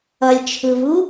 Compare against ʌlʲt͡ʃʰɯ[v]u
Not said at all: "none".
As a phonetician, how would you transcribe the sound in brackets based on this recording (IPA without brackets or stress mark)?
v